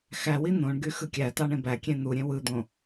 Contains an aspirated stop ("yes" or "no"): no